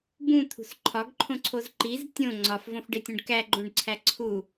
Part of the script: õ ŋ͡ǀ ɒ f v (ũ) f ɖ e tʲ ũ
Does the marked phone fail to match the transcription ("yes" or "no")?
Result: yes